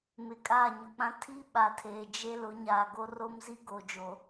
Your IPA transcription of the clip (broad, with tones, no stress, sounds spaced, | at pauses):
m ɪ˨ kʼ aː˦˨ ɲ ʊ˨ k͡p ã˦ tʰ i˦ ɓ a˨ tʰ eː˨ d͡ʒ e˦ l ʊ˨˦ ɲ aː˨ ɡ o˦ r o˦ m z i˦ ɡ oː˨ d͡ʒ o˨